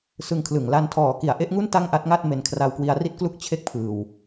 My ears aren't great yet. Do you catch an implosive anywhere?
no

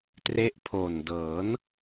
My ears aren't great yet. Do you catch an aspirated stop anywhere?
yes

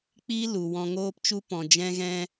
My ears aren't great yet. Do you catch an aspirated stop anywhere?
no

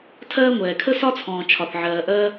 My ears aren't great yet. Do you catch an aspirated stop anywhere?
yes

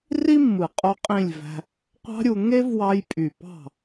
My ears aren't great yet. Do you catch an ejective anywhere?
yes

